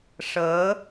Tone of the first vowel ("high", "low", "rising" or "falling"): rising